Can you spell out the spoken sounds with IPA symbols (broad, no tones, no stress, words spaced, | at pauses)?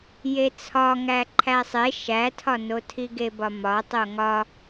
jet͡sʰɒŋæ ǃʰæsˤe ʃætʰɒno tʰiɡebɒmɒ tˤoŋɒ